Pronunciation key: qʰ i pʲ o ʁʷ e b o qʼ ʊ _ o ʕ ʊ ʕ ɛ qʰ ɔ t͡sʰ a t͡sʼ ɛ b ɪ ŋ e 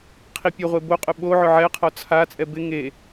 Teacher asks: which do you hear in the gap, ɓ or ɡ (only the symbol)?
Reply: ɓ